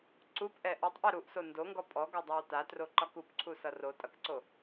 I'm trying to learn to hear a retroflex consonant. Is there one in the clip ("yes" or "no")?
no